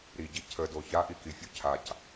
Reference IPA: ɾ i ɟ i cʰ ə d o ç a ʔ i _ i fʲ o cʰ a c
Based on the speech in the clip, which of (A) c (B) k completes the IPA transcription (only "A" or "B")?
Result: B